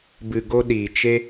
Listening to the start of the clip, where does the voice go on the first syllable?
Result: low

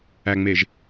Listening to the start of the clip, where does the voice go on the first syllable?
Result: low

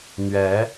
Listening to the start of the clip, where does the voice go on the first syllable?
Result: rising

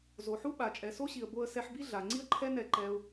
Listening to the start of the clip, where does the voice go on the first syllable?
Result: low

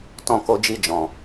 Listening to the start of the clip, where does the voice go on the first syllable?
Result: high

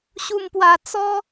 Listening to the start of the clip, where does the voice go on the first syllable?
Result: low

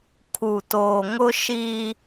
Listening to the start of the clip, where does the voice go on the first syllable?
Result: low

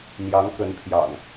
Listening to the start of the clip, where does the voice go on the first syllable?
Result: rising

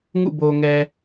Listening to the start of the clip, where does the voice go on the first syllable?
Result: falling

